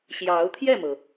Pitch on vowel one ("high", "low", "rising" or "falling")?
rising